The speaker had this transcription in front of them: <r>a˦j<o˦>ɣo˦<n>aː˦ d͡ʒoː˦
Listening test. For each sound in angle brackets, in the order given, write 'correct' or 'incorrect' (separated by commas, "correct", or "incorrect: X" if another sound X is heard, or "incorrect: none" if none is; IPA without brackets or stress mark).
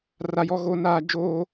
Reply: correct, incorrect: ɔ˦, correct